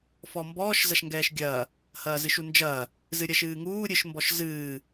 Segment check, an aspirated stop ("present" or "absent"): absent